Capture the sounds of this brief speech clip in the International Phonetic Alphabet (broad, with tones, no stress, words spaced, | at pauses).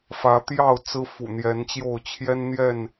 fä˨˦t̪jɑ˥˨ʊ̯ t͡sɹ̩˦fṵ˨˩n̪jɛ˨˦nt͡ɕjo˥˨ʊ̯ t͡ɕʰjɛ˦nn̪jɛ˥˨n